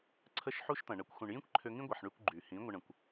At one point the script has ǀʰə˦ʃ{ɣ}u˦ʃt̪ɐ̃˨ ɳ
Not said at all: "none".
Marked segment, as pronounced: ħ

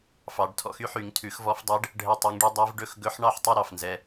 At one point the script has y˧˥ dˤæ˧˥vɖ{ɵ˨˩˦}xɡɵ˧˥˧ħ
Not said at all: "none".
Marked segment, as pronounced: ɵ˧˥˧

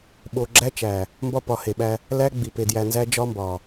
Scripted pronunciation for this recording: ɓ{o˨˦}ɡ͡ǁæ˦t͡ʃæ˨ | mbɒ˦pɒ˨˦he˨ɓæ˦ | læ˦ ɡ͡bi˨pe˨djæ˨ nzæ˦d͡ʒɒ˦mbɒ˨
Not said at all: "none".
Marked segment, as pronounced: o˨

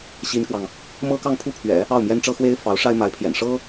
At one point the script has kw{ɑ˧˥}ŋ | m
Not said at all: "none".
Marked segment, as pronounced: ɑ˨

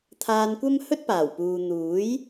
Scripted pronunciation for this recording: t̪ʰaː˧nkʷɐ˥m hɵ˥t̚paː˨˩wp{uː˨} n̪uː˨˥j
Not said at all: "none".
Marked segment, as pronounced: uː˨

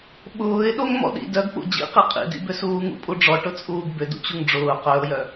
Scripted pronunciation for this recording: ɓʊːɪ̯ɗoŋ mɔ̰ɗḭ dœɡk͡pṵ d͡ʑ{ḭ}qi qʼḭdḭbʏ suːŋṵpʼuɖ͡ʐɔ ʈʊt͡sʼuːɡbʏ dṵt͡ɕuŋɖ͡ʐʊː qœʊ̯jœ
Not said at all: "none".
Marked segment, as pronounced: ḭ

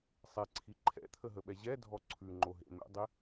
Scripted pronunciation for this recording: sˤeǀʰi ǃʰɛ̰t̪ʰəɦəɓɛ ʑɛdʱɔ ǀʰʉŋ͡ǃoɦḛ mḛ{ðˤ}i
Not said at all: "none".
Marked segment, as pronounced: dˤ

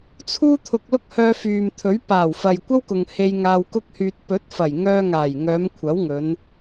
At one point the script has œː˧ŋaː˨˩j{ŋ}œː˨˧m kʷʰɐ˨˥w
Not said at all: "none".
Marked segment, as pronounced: ŋ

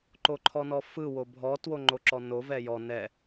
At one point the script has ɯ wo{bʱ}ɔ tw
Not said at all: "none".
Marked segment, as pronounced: bʱ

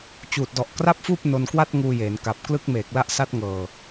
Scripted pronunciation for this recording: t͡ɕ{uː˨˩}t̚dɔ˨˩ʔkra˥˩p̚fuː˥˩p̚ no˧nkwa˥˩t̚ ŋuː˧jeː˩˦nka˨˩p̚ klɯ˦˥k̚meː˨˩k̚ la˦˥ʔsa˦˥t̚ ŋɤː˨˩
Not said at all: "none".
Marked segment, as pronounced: uː˨˩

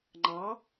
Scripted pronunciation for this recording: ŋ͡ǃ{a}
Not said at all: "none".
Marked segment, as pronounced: ɑ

